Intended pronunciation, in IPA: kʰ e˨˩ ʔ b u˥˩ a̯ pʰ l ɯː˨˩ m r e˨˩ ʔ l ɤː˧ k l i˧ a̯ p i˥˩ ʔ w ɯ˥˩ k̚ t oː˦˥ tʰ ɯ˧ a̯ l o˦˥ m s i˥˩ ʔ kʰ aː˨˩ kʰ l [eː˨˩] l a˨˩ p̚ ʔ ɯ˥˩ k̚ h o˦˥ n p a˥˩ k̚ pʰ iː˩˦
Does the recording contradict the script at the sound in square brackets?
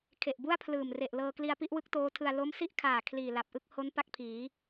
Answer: yes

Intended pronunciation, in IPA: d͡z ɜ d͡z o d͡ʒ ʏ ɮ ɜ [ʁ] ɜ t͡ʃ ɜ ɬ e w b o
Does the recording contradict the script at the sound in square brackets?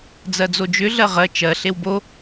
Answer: no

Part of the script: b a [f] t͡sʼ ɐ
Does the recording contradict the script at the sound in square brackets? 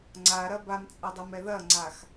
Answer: yes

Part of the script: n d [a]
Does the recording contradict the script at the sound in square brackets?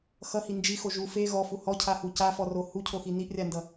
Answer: yes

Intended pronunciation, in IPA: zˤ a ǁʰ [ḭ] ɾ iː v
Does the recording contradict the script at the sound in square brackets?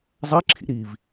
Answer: no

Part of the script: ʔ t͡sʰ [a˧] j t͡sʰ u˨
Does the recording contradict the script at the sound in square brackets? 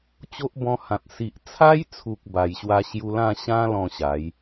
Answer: yes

